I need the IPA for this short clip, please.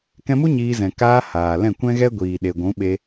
k ɛ̃˧ m u˦ ɲ iː˧ z ɛ̃˨ k aː˧ h aː˨ l ɛ̃˦˨ kʷ ɛ̃˦ ɣ ɛ˦ ɡʷ iː˨ ɗ e˨ ɡʷ ũ˨˦ ɓ e˧

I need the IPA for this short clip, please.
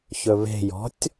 ç ɵ β e̤ j ɔ̤ tʲ

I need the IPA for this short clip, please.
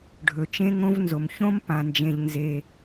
ɖʱ ɵ˨ t͡ʃ ẽ˦˥ ŋ õ˦˥ v n z o˨ m ç õ˦˥ m p ã˨ n d͡ʒ ẽ˨ ʎ n z e˨

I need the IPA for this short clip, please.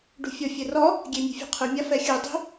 ɖ ṳ fʲ ɔ fʲ e r ɔ | ɡʲ e mʲ ṳ fʲ ɔ̤ qʰ ɯ mʲ a f ɛ xʲ ɯ dˤ i̤

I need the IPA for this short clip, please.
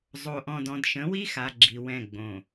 zˤ o˨ ʔ ɔ̃˨ d ɔ̃˨ d ʃ ə̃˨˦ w i˦ x a˨ ɡ͡ǁ i˨ w ɛ̃˦˨ ɡ͡b õ˨

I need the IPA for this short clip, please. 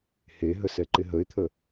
h e ɦ ə s ɛ ǃ ɪ ɦ ə ɪ̯ t̪ʰ ə

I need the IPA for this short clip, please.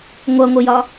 ŋʷ ʌ ŋʷ ə j ɒ

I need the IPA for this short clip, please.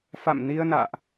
f a̰˧˨ m n i˧ ə̯ n a̰ː˧˨ ʔ

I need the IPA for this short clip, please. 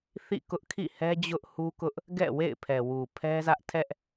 θ ḭ˦˨ k ʊ˦ ʔ kʰ ḭ˦˨ h ɛ˦ d͡ʑ ʊ˦ ʔ h u˦ k ʊ˦ ʔ | ɡ ɛ̰˦˨ w ḛ˦˨ ɪ̯ pʰ ɛ˨ w u˨ pʰ ɛ˦ z ä˦ ʔ tʰ ɛ˦ ʔ

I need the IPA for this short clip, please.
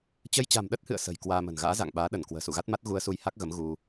t͡ɕ ə˧ j t͡ɕ a̤˨˩ m ɗ ə˦˥ t̚ h ɨ̰˧˨ ə̯ s ə̤˨˩ j k w aː˧ m ə̤˨˩ n ɣ a̰ː˧˥ z a̰˧˨ ŋ ɓ aː˨˦ ɗ ə˧˩ n k w ə̤ː˨˩ s ṵ˧˨ ɣ a˦˥ t̚ m a˦˥ t̚ ɣ u˧ ə̯ s u˧ j h a˦˥ k̚ ɣ ə˨˦ m ɣ u˧

